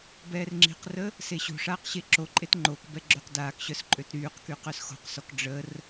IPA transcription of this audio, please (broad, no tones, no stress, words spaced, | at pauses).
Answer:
bɛːrŋ͡ǁi̤qrə | seɕo̤ʂaːq ɕeǁoǃʼet ŋ͡ǃokbɛ ɡ͡ǁøqdaːkɕœs ǃʼøtɾyːqky qœsxo̤qsɔk ɖ͡ʐər